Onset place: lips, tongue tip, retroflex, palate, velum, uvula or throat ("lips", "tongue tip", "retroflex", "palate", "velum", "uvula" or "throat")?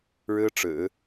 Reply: retroflex